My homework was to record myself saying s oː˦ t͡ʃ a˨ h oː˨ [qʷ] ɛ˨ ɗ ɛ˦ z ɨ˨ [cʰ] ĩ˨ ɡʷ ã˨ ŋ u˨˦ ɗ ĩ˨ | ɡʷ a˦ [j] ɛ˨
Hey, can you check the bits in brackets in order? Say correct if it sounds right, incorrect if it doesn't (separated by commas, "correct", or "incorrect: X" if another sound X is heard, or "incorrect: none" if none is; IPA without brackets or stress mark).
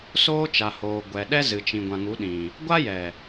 incorrect: ɡʷ, incorrect: t͡ʃ, correct